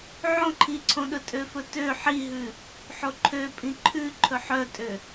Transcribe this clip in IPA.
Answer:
ʕ õ ǃʰ i ǀʰ õ ɗ ɵ tʼ ø f ɵ t ø ħ i ɦ ʉ | ħ o ǃʰ ø pʼ ĩ ǃʰ ʉ ǃʰ ɵ ħ œ tʼ ø

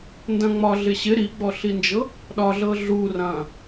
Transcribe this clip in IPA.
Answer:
n d ɐ̃ ŋ͡m ɒ ɮ ɪ ɕ ɪ ɾ i ɡ͡b ɔ ɬ i n d͡ʒ ɤ | ɗ ɒ ɮ ɤ ɮ u r ɐ̃

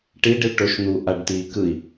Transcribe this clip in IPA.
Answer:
ʈ i ɖ i ɭ ʈ o ʃ n̪ u ʔ a ɖ t iː k ɯ i̯

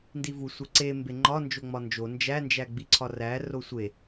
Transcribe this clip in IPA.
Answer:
n d i v u sʷ e ǀ e m b e ŋ͡ǃ ɒ n d͡ʒ o ŋ͡m ɒ n d͡ʒ o n d͡ʒ æ n d͡ʒ æ ɡ͡b i ǀʰ ɒ r æ r o sʷ e

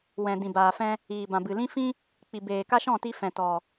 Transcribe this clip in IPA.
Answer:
w ɛ̃˨ d ĩ˨ b aː˨ f ɛ̃˧ | iː˨ b ã˨ b ɨ˨ l ĩ˦ f ĩ˦ | k͡p i˨ b eː˨ k a˦ ʃ ɔ̃˦˨ t i˧ f ɛ̃˨ t ɔ˨

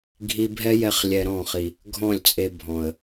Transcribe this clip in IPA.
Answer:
ɡʱ i˧ bʱ ɛ˦ j ɛ˧ χ lʲ ɛ˧ ɾ ɔ̃˦˨ χ i˨ | ɡʱ ɔ̃˦˨ lʲ t͡sʼ e˧ bʱ ɔ̃˨ ə̯

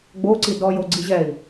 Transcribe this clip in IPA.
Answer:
ɡ͡b o ǀ i d ɔ j o ɡ͡ǀ i ʑ ɛ i̯

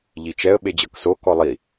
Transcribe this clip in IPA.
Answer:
ʎ i t͡ʃ ɛ ə̯ ɓ e d͡ʑ ɤ k s o k ɔ lˠ i

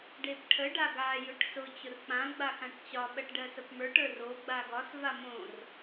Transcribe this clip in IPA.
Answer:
ɖ e p ʈʰ ə ɖ a ɡ a j ʊ ʈ s ʊ t͡ɕ ʊ r k͡p ã ɡ͡b a x ã ʈ t͡ɕ ɒ ɓ ɜ ʈ ɖ ɜ s ə p m ə˞ ʈ ə˞ r o ɡ͡b a ɡ ɒ s v a m õ r

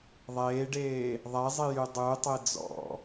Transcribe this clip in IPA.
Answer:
ðˤ eː ɖ eː | ðˤ ɛ zˤ i j y dˤ y tˤ e d͡z ɔ̰

